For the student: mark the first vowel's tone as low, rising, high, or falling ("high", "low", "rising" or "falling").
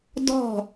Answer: falling